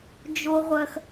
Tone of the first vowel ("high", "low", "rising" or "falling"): high